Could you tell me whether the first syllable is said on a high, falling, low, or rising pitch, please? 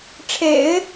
low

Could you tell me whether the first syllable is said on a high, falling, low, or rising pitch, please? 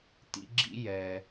high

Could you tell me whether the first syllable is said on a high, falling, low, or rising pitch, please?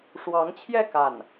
rising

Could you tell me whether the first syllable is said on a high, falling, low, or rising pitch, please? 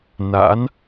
rising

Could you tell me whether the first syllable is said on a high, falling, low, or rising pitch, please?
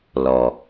low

